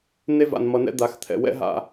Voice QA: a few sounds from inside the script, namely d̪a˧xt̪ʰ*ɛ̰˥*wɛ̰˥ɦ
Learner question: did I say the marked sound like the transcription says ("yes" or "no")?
no